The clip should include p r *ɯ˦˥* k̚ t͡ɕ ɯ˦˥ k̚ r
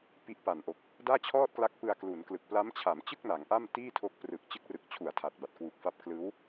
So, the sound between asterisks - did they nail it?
no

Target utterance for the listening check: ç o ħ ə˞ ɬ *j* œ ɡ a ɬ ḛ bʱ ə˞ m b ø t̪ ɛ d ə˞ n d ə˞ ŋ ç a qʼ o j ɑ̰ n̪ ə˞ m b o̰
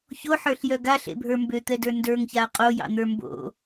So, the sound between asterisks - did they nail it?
yes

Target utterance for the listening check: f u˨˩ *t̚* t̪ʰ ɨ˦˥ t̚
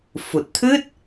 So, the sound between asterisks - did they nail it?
yes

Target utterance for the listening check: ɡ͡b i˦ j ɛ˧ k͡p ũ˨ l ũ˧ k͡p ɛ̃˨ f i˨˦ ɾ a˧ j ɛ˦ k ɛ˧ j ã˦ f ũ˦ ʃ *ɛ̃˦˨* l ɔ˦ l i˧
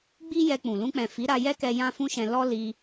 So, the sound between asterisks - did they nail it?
no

